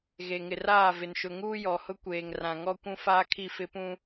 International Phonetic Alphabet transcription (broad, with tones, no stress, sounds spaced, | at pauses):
ɣ e˨ ŋ ɪ˨ r aː˦˨ v ɪ˨ n ʃ ʊ˨ ŋ uː˦ j ɔ˨ h ʊ˦ kʷ eː˨ ŋ r ã˨ ŋ ɔ˦ kʷ ũ˦ f aː˦ kʰ i˦˨ f ɪ˦ p ũ˦